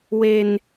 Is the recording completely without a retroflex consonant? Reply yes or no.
yes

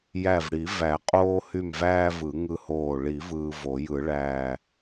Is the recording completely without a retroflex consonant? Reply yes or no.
no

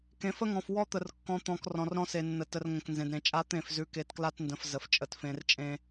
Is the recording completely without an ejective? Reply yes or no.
no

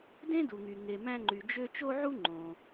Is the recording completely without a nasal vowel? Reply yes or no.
no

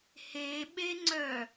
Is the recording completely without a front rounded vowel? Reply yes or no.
no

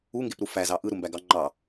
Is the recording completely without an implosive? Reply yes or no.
yes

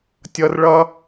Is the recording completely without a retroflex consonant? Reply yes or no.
no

